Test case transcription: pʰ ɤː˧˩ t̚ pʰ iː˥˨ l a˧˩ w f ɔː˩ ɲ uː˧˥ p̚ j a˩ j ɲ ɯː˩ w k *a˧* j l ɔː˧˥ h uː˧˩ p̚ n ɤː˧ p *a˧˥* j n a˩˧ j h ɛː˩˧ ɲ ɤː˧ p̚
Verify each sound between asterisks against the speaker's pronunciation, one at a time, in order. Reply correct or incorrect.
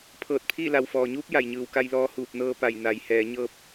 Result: correct, incorrect: a˧˩

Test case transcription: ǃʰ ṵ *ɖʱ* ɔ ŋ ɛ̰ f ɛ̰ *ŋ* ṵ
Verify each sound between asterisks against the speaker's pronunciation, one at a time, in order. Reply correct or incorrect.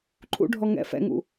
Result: correct, correct

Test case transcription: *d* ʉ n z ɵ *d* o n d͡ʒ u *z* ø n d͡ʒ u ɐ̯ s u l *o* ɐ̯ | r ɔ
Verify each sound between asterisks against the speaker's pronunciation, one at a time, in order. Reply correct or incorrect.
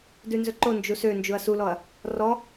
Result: correct, incorrect: ǃ, incorrect: s, incorrect: ɔ

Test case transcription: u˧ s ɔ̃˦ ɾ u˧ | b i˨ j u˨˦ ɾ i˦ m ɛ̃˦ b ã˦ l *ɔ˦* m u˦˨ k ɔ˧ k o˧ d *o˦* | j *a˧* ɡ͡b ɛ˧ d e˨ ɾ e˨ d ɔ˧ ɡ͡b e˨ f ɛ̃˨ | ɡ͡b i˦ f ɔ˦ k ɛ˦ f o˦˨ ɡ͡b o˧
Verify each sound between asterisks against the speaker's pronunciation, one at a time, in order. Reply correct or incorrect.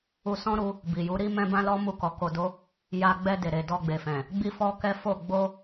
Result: correct, correct, correct

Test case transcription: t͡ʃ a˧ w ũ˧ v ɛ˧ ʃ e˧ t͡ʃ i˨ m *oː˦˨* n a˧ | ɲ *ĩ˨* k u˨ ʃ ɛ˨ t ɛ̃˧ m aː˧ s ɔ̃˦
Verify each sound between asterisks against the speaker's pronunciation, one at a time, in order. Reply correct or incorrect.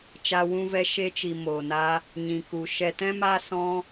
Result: incorrect: oː˨, correct

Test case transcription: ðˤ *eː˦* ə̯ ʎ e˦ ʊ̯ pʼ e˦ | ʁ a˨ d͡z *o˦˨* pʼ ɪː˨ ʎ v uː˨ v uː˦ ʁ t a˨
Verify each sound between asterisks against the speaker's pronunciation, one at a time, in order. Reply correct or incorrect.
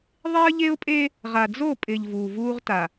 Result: incorrect: e˦, correct

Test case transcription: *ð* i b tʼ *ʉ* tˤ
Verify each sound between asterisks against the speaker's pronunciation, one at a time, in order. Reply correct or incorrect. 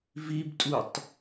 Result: incorrect: v, incorrect: u

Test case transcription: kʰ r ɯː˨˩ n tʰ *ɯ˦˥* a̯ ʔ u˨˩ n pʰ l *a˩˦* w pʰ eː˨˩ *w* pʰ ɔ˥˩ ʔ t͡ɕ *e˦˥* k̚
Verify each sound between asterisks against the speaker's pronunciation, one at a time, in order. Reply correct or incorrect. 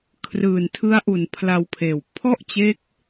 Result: correct, incorrect: a˧, correct, correct

